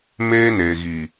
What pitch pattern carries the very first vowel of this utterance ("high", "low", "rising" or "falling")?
high